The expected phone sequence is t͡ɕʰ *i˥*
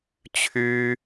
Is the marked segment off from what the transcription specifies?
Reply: yes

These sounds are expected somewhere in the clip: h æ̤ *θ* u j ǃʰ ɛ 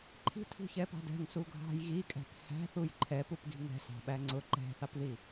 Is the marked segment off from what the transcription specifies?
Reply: no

